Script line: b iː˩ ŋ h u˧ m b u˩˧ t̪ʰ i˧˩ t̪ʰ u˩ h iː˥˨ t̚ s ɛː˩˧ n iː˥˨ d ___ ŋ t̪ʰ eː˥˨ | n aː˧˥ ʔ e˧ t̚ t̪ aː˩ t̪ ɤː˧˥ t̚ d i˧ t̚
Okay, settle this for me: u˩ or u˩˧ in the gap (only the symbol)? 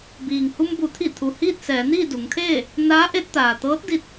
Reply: u˩˧